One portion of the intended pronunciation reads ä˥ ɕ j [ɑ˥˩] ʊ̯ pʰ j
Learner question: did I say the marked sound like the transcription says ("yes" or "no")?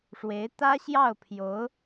yes